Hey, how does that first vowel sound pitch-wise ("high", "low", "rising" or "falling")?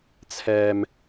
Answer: low